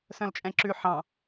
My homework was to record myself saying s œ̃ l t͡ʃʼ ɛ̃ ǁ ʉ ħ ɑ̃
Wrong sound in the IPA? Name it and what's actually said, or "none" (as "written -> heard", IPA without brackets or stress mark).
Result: none